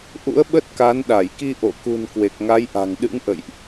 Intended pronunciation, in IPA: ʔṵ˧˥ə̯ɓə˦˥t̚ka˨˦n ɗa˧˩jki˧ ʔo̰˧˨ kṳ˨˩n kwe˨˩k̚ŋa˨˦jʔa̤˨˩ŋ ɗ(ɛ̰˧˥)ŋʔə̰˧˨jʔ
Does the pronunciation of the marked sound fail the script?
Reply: yes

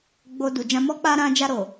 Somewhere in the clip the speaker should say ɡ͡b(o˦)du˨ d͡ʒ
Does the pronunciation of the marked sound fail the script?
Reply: yes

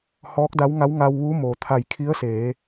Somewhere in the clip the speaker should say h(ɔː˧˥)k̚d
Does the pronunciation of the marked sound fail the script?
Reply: no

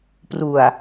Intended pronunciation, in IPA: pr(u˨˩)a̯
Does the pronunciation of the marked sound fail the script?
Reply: no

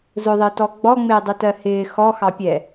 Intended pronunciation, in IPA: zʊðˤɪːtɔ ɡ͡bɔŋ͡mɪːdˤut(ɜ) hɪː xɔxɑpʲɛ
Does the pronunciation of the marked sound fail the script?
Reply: no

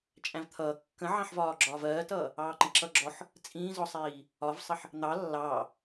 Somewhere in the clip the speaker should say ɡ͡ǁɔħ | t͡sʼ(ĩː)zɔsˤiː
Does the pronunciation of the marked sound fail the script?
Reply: no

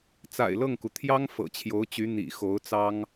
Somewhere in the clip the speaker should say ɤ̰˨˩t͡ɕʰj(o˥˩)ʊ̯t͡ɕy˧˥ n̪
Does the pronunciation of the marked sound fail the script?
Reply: yes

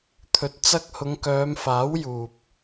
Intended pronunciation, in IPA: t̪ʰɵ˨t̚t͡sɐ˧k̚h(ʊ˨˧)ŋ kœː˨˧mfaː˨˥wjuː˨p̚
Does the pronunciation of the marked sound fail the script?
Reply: no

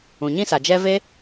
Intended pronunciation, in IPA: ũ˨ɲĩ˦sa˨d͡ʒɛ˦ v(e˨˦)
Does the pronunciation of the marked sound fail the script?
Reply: yes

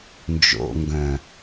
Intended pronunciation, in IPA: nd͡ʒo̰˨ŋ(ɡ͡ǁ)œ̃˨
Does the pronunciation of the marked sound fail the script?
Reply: yes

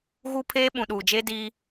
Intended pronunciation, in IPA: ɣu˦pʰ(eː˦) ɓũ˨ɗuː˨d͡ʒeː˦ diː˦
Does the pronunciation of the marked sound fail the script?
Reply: no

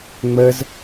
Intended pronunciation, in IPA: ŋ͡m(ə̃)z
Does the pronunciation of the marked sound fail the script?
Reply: yes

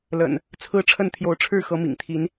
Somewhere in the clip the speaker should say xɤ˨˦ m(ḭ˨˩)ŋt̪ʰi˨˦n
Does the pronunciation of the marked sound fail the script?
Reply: no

